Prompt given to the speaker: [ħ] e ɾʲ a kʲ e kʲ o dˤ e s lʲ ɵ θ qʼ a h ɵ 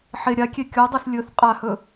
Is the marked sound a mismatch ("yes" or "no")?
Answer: no